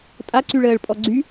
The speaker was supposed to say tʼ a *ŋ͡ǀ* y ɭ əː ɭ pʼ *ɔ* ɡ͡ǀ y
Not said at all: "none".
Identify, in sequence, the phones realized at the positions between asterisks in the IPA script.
ǀ, ɔ

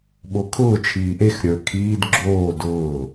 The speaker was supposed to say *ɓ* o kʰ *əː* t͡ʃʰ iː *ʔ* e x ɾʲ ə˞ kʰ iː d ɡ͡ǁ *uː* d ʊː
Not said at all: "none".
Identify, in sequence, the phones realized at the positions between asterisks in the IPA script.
ɓ, ʊː, ʔ, oː

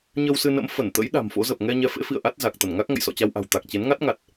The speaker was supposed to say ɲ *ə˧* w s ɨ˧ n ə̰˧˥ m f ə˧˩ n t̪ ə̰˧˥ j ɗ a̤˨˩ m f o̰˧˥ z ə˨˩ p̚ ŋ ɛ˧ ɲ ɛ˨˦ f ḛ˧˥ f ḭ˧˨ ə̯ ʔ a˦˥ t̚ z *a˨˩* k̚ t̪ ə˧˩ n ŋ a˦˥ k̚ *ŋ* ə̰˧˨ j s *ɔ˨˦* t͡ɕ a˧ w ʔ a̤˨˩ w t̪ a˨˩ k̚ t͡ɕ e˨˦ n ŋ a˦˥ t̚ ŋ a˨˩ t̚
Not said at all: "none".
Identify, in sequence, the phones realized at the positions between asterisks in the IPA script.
ə˧, a˨˩, ŋ, ɔ̰˧˨

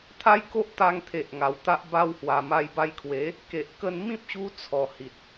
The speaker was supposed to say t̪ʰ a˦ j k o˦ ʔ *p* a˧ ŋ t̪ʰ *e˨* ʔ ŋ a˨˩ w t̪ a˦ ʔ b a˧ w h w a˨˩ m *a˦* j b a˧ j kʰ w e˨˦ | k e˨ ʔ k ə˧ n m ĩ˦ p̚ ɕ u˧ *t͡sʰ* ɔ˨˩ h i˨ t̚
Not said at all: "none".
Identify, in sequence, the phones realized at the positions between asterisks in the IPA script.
t̪, e˨, a˧, t͡sʰ

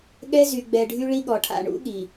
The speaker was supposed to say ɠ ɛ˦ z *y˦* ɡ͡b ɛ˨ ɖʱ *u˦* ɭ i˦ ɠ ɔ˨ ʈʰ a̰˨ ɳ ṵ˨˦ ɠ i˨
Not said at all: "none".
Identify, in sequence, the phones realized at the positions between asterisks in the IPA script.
y˨, y˦

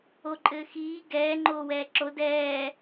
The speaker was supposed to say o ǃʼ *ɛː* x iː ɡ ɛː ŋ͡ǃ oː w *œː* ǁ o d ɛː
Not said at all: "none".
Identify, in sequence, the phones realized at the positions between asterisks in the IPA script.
ɘː, ɛː

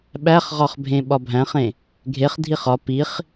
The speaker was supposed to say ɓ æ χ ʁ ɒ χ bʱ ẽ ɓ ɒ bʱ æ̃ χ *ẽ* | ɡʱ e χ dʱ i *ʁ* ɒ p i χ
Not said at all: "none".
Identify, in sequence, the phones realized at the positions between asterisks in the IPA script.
ẽ, χ

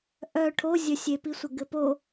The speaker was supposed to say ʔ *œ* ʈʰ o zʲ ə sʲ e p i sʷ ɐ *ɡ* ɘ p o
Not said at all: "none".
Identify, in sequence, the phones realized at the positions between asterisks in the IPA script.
œ, ɡ

